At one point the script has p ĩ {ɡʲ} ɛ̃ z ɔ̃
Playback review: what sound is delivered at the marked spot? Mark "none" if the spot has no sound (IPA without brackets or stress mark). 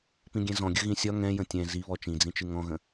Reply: ɡʲ